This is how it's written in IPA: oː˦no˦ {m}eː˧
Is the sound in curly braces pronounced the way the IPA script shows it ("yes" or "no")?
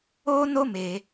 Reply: yes